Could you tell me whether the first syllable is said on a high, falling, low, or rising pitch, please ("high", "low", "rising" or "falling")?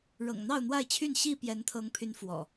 low